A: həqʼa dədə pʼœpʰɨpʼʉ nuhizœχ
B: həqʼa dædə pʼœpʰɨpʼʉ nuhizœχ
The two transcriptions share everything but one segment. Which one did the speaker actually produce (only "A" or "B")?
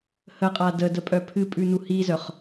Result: A